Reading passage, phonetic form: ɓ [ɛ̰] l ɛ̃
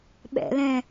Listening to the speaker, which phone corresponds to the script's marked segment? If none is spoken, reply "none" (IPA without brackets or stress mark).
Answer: ɛ̰